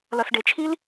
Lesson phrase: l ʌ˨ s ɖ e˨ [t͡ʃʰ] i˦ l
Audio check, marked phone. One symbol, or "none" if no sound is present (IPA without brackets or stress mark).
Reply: t͡ʃʰ